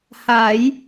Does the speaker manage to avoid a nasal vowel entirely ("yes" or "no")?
yes